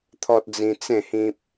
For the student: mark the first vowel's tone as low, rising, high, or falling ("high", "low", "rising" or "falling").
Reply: high